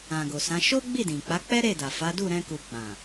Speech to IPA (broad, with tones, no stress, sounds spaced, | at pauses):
ã˨ ɡ o˨ s ã˨˦ ʃ o˦ ɡ͡b i˦˨ d ĩ˨ k͡p a˨˦ k͡p ɛ˦ ɾ e˦˨ d a˨ f a˨˦ d u˦˨ ɾ ɛ̃˧ k u˨ ɡ͡b ã˨